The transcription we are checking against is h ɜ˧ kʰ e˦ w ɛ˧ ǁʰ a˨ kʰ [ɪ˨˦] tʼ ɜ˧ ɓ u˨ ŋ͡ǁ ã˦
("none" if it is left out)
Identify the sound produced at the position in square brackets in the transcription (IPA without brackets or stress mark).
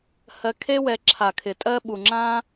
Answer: ɪ˨